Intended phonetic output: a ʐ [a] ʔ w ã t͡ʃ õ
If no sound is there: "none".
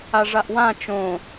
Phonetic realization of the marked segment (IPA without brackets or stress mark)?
a